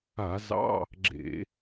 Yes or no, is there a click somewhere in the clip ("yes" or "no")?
yes